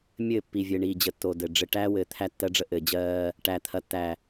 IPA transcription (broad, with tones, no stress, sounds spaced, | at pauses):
mʲ ɘː˦˨ pː i˨ vʲ ɘː˨ ɳ iː˨ d͡ʑ ə˨ tː o˨ d ɘ˨ ɖ͡ʐ ɘ˨ ʈ æː˦ w ɘː˨ t̪ʰ æ˦ tː ɜ˦ ɖ͡ʐ ə˦ ʔ ɘː˨ d͡ʑ ɜː˦ | ʈ æː˨ t̪ʰ ɐ˨ tː æ˨